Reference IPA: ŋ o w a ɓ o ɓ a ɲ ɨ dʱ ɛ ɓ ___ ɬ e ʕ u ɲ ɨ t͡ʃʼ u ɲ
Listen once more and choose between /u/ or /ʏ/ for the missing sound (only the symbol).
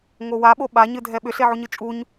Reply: ʏ